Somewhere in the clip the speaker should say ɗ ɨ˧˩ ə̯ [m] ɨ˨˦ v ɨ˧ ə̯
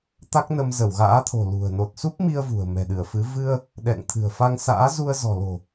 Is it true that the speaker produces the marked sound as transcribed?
no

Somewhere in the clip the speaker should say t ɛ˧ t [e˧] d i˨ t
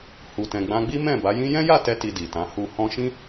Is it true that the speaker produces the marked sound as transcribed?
no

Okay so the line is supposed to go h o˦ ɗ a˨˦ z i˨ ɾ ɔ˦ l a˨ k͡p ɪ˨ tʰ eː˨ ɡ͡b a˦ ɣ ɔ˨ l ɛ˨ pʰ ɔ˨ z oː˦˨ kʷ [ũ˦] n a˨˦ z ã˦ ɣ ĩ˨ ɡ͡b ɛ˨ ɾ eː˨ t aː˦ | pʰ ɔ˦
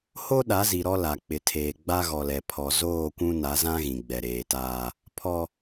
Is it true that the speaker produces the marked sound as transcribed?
yes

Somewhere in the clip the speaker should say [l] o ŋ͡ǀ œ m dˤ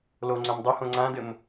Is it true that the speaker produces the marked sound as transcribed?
yes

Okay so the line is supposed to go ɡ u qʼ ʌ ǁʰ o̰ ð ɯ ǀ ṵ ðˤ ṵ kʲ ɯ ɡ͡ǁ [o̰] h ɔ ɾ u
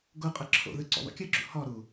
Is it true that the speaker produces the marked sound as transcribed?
no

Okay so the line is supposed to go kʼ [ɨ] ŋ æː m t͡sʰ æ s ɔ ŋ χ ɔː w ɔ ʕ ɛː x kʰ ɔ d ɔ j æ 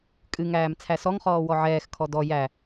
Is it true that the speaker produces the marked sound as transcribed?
yes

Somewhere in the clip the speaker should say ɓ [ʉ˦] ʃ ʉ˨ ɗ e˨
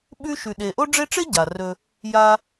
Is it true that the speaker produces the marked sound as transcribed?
no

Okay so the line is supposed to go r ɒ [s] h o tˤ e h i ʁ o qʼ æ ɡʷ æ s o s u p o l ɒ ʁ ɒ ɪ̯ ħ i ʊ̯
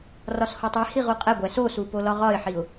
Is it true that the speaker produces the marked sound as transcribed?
yes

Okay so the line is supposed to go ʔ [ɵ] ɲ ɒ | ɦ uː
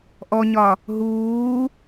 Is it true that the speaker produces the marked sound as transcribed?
no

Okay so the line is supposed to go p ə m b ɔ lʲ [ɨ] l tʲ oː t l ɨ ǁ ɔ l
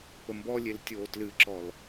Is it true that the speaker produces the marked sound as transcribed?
no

